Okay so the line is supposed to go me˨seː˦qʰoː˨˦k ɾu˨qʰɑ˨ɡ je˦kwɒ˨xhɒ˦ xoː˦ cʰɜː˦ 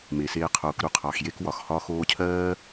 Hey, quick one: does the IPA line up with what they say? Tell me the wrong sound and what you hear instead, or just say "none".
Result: ɡ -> x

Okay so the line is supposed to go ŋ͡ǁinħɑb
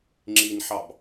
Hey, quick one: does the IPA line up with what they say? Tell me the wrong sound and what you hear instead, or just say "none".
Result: none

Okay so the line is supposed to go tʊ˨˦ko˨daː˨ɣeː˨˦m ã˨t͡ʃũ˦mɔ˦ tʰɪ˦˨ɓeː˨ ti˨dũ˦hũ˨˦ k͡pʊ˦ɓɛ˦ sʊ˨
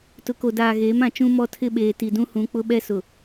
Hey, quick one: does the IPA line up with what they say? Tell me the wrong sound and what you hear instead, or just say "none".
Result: none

